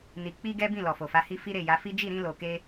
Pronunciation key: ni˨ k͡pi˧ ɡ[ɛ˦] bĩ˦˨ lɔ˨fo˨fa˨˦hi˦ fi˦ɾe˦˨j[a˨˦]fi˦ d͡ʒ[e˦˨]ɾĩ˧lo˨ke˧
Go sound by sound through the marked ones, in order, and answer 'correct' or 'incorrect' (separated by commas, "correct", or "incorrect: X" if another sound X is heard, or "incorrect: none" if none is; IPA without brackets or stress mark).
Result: correct, correct, incorrect: i˦˨